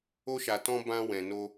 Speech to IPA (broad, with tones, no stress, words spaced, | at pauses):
o˧ʃa˨tɔ̃˧ bã˧ wɛ̃˨no˧